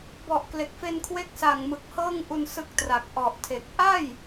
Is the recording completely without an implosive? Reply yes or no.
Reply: yes